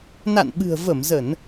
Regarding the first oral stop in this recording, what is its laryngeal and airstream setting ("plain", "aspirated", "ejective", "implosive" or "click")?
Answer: implosive